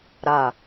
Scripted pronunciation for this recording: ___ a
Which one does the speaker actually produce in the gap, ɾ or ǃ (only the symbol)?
ɾ